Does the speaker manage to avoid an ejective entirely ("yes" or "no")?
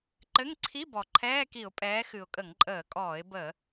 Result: no